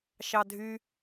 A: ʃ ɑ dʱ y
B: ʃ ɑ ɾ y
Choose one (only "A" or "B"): A